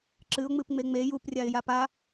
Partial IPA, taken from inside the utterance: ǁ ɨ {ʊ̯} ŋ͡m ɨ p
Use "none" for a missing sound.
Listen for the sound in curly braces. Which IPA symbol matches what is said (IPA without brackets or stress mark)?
ʊ̯